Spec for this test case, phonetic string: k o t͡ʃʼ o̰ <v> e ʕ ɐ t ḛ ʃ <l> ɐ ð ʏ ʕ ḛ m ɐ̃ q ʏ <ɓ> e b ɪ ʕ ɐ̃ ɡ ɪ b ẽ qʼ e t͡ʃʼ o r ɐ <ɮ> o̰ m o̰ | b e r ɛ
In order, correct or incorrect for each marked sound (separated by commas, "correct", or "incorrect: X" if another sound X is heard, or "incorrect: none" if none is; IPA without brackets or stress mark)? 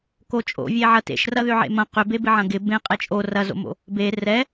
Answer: incorrect: vʲ, incorrect: r, incorrect: b, incorrect: z